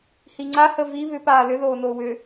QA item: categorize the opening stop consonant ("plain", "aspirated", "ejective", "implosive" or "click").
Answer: click